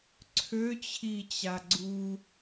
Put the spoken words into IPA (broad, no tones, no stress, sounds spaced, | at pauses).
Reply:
ǀʰ ø t͡ɕʰ i t͡ɕ a ɡ͡ǀ u